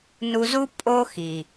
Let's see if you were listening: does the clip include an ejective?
yes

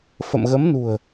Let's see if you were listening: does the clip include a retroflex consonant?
no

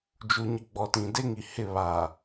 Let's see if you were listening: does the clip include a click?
no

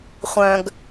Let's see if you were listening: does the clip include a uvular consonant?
yes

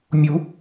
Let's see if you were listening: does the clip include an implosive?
no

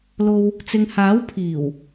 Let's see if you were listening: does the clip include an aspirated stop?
yes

